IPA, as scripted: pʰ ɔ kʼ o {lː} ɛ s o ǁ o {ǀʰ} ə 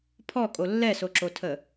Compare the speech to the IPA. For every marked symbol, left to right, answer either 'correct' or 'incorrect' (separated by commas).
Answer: correct, incorrect